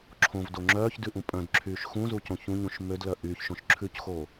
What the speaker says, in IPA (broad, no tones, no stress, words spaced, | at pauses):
ǁʰõvdo ŋ͡ǁœːçdʉʔũ pʼœ̃dǁʰyːʃ xũzucõ çũɲũʃ mødlœ ʔyːçʃõʃ ǁʰʉcxo